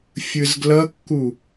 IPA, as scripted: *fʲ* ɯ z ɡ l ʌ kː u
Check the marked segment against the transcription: correct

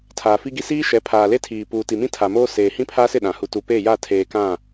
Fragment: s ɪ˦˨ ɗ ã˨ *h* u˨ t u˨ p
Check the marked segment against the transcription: correct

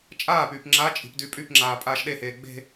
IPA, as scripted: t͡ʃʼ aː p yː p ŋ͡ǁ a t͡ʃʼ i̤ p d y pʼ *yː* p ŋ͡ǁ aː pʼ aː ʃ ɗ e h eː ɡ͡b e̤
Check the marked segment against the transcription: incorrect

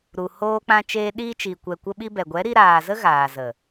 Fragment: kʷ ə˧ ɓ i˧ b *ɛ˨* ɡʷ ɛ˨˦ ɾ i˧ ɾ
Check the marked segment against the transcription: correct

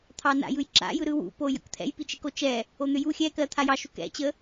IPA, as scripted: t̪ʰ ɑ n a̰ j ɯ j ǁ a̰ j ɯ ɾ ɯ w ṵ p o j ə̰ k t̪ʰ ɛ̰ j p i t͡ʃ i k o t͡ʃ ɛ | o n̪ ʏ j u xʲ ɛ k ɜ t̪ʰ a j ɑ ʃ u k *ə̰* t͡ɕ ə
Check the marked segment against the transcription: incorrect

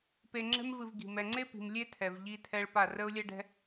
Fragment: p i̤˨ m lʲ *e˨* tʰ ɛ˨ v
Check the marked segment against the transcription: incorrect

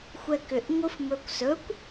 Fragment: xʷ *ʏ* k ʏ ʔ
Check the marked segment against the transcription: incorrect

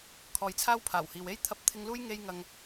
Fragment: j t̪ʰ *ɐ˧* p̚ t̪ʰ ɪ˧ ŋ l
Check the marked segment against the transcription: correct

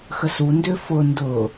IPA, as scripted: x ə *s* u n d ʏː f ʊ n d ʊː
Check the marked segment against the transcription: correct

